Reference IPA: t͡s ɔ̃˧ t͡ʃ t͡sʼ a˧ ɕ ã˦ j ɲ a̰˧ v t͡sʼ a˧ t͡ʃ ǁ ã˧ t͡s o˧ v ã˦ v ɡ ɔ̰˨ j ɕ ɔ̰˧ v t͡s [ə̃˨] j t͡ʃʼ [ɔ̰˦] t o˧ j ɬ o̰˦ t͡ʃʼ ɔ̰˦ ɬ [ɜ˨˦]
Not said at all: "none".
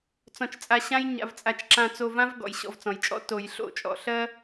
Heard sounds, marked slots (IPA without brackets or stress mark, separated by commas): ɔ̃˨, ɔ̰˦, ɜ˦